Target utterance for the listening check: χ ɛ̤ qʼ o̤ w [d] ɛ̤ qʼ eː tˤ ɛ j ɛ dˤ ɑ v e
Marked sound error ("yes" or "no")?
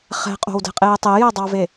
no